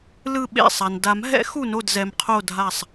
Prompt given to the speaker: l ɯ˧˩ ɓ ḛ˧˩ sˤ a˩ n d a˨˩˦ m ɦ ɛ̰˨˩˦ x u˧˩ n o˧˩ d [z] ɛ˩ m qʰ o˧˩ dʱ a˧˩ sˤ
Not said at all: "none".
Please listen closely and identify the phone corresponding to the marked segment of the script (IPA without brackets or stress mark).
z